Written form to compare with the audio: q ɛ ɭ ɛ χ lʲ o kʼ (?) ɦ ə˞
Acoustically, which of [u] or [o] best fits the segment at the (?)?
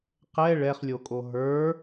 o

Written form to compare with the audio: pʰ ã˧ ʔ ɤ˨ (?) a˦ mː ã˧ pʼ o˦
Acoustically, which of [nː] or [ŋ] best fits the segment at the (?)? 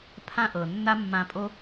nː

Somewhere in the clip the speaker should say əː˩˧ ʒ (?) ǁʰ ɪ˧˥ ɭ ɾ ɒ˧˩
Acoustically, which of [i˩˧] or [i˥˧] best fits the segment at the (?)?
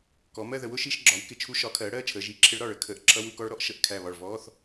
i˩˧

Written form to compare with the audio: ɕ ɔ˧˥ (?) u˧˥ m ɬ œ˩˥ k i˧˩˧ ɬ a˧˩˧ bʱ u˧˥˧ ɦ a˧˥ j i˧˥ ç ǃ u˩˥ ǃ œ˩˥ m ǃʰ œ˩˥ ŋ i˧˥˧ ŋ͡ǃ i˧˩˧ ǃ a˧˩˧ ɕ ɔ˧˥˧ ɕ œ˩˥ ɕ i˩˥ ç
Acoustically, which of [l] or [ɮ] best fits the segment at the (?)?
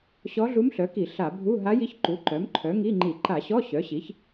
ɮ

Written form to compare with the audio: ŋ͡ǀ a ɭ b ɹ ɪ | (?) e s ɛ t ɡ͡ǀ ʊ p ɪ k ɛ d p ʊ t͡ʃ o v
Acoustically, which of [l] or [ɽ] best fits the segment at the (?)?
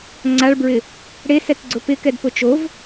ɽ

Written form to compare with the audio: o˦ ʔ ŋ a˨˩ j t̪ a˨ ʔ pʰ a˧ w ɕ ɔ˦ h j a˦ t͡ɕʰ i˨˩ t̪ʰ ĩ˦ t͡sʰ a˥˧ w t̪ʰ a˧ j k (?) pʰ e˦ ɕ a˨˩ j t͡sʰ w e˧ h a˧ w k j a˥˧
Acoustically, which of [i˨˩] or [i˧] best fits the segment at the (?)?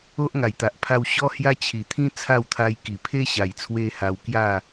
i˨˩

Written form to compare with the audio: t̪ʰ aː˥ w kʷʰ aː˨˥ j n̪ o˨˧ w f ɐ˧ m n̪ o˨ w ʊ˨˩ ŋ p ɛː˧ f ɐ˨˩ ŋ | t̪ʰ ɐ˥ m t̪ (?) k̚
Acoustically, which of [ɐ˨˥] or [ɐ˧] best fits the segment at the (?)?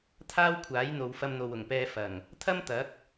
ɐ˨˥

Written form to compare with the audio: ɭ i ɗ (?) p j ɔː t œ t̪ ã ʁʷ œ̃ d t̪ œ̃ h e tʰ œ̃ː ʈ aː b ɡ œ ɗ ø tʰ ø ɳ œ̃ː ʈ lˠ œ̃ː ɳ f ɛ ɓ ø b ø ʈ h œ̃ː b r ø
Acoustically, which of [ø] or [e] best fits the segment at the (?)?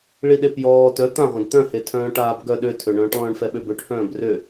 e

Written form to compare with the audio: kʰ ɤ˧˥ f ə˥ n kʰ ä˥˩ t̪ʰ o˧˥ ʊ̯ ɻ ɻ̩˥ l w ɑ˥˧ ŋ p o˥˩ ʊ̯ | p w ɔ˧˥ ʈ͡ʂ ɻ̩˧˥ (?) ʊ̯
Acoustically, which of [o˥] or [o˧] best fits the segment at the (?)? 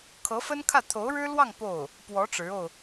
o˧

